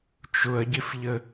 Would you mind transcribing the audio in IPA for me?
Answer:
t͡ʃʊɐ̯ɟɪfʎə

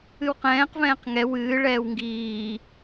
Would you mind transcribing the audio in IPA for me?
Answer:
ɨwqɛ̃ːq vɛ̃ːqŋɛ wɨː ɭɛːwŋɡiː

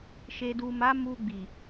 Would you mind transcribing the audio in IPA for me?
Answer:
ʃe˨du˨ma˨˦ mu˧ɡ͡bi˨

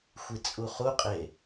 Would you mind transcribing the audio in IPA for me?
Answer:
xʷit͡sʼuχuqʼe

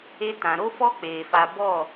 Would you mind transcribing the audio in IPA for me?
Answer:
e˧tã˨ɾo˦fɔ˦ k͡peː˨fa˧ bɔ˦˨

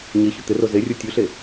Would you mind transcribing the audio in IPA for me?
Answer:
ɲeçɵ t̪ɪro zerʲu tʲuɬe

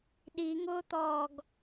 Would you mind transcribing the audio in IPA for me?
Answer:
ɗiŋʊːt̪ɔːɡ

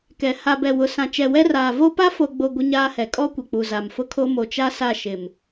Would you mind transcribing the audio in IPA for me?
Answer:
kɛ˨ ha˨bɛ˨ wʊ˨ sã˨t͡ʃɛ˨wɛ˦ raː˨vo˦ pa˦fo˨ɡ͡bo˨ ɡʷɪ˦ɲaː˦hɛ˨ kʼɔ˦kʷɛ˨k͡pu˨ za˨mfʊ˦kʰo˦ mo˨t͡ʃa˦ sa˦˨ʃɪ˨m

